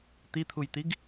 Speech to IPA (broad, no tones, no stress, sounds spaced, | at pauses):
t̪ i t̪ʰ u j t̪ i ɡ